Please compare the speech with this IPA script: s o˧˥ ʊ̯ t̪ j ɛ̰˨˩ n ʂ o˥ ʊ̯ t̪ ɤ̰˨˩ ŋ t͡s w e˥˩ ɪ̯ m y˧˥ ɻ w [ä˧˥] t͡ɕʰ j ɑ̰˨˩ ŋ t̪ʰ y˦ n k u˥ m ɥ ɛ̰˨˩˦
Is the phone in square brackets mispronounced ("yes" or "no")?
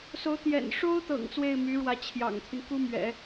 no